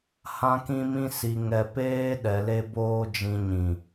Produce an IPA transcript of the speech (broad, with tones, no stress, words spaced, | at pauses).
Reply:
hã˦kĩ˦mĩ˦ si˧ŋɛ˧peː˦ ɗɛ˧le˦boː˦d͡ʒĩ˧ ɲĩ˨